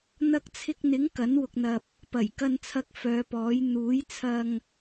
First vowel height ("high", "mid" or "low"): low